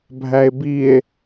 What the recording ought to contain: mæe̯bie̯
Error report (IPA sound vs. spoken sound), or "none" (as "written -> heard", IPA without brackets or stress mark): m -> bʱ